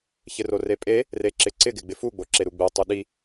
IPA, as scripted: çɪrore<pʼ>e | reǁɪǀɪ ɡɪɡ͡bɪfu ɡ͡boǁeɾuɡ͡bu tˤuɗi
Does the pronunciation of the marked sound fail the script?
no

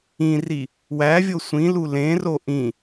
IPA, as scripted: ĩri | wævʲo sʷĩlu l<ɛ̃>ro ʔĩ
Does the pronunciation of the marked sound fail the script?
yes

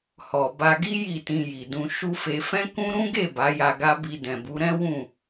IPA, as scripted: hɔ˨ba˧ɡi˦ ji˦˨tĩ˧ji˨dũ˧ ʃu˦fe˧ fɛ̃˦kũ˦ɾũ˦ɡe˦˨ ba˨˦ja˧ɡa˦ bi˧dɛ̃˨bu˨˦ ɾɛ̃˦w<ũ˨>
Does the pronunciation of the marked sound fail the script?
yes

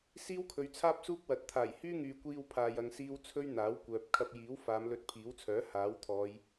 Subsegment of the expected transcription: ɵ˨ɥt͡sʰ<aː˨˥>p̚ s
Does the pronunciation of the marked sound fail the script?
yes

